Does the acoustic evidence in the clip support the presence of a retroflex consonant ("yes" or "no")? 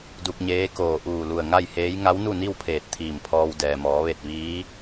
no